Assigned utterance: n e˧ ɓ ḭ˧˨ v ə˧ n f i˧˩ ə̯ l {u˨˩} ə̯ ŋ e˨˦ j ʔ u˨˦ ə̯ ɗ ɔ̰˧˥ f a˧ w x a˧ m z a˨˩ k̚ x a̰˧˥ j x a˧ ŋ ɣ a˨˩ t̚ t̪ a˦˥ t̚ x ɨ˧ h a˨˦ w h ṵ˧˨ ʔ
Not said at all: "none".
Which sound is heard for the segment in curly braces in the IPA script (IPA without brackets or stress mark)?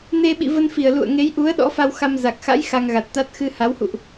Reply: ṵ˧˨